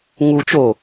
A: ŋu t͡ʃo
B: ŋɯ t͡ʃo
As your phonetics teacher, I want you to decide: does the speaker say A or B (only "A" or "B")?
A